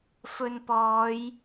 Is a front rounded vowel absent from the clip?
yes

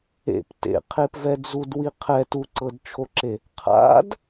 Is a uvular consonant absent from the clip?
no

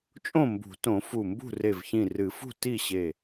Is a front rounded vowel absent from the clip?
yes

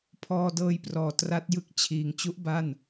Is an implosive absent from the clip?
yes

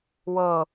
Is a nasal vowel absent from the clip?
yes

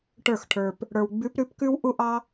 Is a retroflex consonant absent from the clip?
no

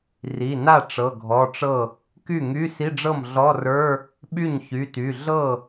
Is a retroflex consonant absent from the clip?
no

